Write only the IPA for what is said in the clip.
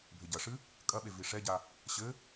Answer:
bʱ ɘ ɟ ɐ ʂ ɨ | kʼ ɐ ɓ e v i ʂ ɛ ɟ a | ɕ ɘ

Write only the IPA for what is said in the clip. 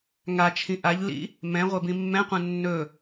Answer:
ŋ a t͡ʃʰ ĩ ʔ a ʎ l ḭ | m ɛ̃ ʁʷ ɛ b ĩ mː ɛ̃ qʷ ɛ̃ nː ɵ

